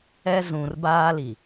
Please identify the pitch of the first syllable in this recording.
high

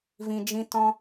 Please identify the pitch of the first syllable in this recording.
low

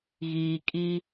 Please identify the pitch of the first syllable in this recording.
low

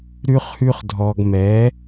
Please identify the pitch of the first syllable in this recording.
high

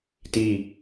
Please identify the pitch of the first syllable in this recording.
falling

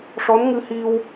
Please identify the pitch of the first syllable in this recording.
rising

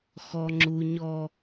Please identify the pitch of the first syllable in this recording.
high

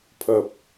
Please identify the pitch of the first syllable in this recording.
low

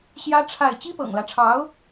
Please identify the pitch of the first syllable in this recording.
high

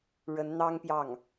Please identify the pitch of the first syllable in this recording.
rising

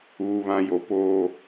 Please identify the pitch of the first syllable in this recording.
low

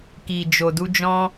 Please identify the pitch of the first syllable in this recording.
low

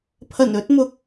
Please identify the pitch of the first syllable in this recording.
low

